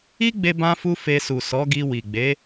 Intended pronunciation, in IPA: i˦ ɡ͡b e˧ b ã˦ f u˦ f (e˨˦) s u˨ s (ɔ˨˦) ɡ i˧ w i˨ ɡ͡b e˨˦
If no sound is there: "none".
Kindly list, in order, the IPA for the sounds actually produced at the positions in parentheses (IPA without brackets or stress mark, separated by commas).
e˧, ɔ˨˦